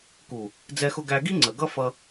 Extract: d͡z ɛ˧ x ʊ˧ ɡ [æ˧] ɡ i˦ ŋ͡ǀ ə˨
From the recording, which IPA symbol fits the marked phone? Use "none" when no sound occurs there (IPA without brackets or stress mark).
æ˧